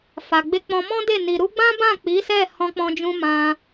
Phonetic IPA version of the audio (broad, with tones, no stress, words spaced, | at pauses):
fa˨ɡ͡be˧ k͡pɔ̃˧ mɔ̃˦de˦˨ ni˨ɾu˧ɡ͡bã˦bã˦˨ k͡pi˨˦sɛ˦˨ hɔ̃˧k͡pɔ̃˧d͡ʒũ˧ mã˧